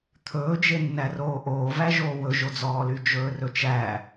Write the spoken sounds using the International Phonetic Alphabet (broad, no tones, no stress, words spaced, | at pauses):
t̪ʰɵːd͡ʒenːæroː ʔoːvæʒoː wɵʒod͡zɔːly d͡ʒɵːrɵt͡ʃæ